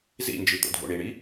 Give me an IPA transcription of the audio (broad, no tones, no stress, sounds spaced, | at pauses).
z ḭ n d͡ʒ i t̪ o̰ dʱ o̰ ɳ i ɳ i